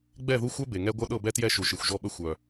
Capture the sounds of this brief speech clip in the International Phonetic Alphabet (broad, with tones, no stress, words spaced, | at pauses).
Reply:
ɡ͡bɛ˦˨ðu˦xʷœ˦ be˨ŋɛ˦ ɡʷœ˦ɗɤ˦˨bɛ˦tjɛ˦˨ ʃu˨ʃɨ˨xʷʒɔ˦ɓə˦ xʷœ˨